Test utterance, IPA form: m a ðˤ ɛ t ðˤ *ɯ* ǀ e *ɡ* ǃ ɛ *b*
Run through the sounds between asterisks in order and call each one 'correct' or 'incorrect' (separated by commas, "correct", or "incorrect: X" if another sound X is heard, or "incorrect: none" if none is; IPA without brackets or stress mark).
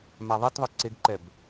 correct, correct, correct